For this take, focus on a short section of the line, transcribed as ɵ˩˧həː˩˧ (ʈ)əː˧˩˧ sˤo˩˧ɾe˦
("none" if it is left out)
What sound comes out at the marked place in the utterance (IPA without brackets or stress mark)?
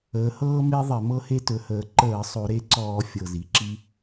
ǃ